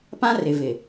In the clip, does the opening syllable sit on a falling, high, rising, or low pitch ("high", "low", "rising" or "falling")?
high